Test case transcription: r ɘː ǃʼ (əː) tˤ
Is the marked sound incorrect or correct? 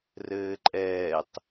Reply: incorrect